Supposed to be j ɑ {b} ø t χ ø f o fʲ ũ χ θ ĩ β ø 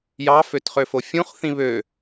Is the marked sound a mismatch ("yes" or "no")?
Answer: yes